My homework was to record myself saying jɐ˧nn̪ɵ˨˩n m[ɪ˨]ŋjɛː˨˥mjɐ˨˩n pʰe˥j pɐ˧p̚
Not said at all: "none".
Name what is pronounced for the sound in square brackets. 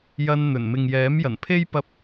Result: ɪ˨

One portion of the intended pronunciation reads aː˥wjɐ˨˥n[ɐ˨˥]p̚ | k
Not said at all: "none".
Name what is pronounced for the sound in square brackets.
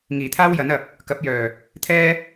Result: ɐ˨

